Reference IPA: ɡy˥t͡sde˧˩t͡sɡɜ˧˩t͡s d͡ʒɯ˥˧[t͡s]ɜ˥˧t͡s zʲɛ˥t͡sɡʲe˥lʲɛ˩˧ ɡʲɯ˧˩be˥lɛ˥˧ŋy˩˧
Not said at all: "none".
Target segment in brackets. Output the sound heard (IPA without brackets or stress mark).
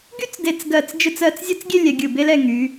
t͡s